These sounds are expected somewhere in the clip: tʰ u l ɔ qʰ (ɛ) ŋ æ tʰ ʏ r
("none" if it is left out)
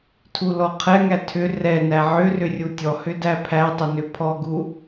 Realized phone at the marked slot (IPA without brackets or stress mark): ɛ